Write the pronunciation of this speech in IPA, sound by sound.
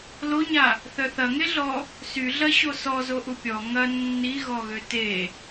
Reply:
l o ɲ a | θ œ θ ɐ ŋ e ɮ ɔ | s y ɮ ɐ ɕ o s ɔ z o ʔ u pʲ ɔ ŋ ɐ nː i ɣ ɔ ɣ ø t e

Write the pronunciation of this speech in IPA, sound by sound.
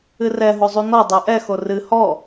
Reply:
ɨ r ɛ ɦ o zˤ u n ɔ dˤ ɛ ʔ ɛ x o r ɨ h ɔ

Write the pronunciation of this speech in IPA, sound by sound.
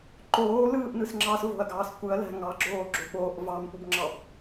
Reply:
ǃ oː l ɯː ʔ n ɯ s ŋ͡ǁ ɑ s v o̤ ɐ̯ ɡ ɑː s kʷ ɯ ɐ̯ l æ̤ ŋ ɑ ɡ͡ǁ oː ɡ͡ǁ o ɓ oː ʔ v ɑ m p u b ŋ͡ǁ ɑ b

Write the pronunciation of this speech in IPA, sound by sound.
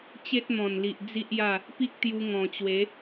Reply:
t͡ɕ e˦ t̚ n̪ ɔ̃˨˩ n l i˨ ʔ d͡z i˦ ʔ j a˥˧ | p i˦ k̚ t̪ j u˧ ŋ ɔ̃˨˩ t͡ɕ w e˨˦

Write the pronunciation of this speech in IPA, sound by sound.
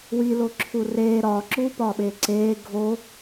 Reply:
w i l o ǁʰ u r eː ɾ ɒː ǁ uː p ɒː ɓ eː ǀ eː ɡʱ o

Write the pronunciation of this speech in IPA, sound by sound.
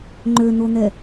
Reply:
ŋ͡ǃ ø n̪ o n̪ ɛ

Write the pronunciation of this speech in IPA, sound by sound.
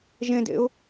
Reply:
ʒ ẽ d ḛ ʊ̯

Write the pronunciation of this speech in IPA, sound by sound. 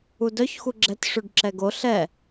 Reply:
u d œ ç x u ɡ͡ǁ ɛ t ʂ ʉ ɖ ǁ ɛ ɡ o ɬ ɛ

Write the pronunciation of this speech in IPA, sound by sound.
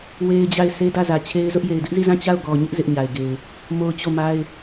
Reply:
w e˦ ɪ̯ d͡ʑ a˦˨ ɪ̯ s e˦ d ä˦˨ z ä˨ t͡ɕʰ e˦ ɪ̯ z ʊ˦ ʔ j e˨ ɪ̯ d ɪ˦ ʔ z i˦˨ z ã˦˨ t͡ɕ a˦˨ ʊ̯ ɡ ɔ˨ ɲ ɪ˦ ʔ z ɪ˦ ʔ ɲ a˨ ɪ̯ ɡ e˨ ɪ̯ | m o˦ ʊ̯ t͡ɕ o˦˨ m a˦ ɪ̯

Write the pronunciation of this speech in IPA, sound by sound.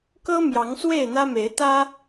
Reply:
k ɤ˦ m j ɑ˨˦ ŋ s w e˥˨ ɪ̯ n̪ ä˦ m e˨˦ ɪ̯ t̪ ä˦

